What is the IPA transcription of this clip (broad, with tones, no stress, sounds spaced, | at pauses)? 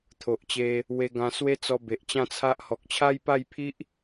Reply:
t̪ʰ o˨ ʔ t͡ɕ e˧ | w e˧ ɡ ã˧ s w e˦ t͡s ɔ˧ b e˨ ʔ t͡ɕ ã˥˧ t͡sʰ a˦ ʔ h ɔ˨ k̚ t͡ɕʰ a˦ j p a˥˧ j pʰ i˦ ʔ